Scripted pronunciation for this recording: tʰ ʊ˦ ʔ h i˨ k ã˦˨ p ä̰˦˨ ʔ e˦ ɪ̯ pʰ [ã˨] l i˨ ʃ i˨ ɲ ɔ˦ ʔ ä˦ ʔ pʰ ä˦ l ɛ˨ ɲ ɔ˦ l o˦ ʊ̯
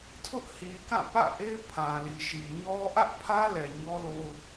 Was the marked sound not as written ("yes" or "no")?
no